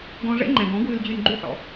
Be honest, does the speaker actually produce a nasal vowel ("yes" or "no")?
yes